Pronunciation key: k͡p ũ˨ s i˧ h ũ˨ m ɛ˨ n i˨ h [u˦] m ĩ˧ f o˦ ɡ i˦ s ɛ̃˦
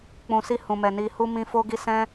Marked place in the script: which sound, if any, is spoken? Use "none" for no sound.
u˧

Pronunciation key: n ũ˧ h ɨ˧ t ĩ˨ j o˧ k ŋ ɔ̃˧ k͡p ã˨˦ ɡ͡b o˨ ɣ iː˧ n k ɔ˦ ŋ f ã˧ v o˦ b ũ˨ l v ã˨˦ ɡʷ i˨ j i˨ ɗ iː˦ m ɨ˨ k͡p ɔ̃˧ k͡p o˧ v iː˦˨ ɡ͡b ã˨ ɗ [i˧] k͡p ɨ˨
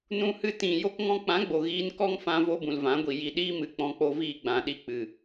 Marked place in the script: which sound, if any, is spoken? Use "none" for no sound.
i˧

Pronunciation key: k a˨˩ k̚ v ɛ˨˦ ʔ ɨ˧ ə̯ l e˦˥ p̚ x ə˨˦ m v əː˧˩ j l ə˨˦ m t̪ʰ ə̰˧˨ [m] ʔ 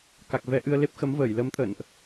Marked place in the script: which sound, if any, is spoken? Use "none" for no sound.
n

